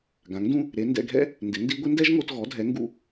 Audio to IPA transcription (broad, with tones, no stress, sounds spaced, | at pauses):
ɡ ã˩˥ ŋ d ũ˥ | ɾ e˩˥ n d ɛ̰˧ ɡʱ ɛ̰˥ | n d ɪ˩˥ n d i˥ ɡʷ ɪ˥ n d ɛ˥ ʒ ŋ o˧ t ɣ ɔ˩˥ dʱ ɛ˩˥ ŋ ɡ ṵ˧